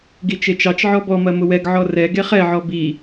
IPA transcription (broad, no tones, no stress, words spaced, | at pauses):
ɡit͡ʃet͡ʃɑt͡ʃʕɔ bɔmɐ mʊwɛɡʕɔ rɛɡe χɛʕɔ bi